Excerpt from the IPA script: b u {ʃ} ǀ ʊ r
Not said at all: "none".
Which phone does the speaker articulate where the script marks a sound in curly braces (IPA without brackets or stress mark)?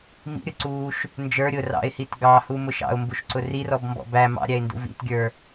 ʃ